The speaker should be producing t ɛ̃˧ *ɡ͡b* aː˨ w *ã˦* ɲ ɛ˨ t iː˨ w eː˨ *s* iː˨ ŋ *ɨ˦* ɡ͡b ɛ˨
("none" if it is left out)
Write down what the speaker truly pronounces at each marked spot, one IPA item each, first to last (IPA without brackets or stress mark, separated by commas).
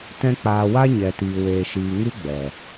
k͡p, a˦, ʃ, ɨ˦